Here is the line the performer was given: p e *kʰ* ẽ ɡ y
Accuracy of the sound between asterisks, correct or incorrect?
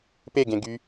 incorrect